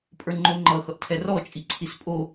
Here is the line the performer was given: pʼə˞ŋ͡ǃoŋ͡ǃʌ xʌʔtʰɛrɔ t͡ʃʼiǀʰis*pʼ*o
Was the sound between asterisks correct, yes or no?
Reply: yes